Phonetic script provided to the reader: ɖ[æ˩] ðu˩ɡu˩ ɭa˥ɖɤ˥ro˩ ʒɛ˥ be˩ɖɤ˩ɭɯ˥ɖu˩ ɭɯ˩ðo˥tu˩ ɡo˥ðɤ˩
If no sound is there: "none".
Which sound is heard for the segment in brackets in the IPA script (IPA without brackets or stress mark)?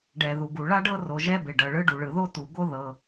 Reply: ɛ˩